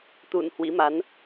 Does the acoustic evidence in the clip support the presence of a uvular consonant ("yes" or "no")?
no